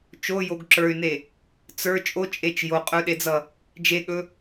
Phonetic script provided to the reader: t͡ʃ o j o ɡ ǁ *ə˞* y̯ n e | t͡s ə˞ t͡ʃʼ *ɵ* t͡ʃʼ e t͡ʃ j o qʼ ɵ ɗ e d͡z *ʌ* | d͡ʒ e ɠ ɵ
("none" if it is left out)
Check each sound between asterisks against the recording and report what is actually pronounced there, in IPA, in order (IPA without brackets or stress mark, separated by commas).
ə˞, o, ʌ